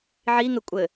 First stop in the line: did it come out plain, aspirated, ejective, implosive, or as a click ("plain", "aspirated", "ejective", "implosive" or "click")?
ejective